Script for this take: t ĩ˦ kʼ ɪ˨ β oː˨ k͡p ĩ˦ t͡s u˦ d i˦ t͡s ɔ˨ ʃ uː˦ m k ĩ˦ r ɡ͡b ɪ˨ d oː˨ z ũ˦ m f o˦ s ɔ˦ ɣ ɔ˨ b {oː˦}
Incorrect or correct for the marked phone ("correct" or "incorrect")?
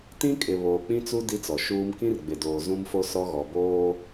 correct